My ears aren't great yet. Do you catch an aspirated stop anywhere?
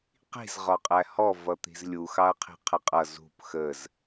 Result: yes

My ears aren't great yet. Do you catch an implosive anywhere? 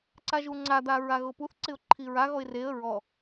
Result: no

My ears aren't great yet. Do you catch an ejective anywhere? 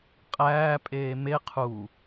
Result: yes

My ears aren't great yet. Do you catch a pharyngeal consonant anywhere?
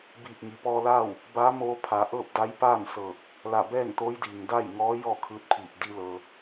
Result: no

